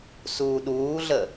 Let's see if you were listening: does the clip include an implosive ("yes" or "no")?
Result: yes